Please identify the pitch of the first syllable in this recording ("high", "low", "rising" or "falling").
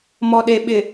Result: low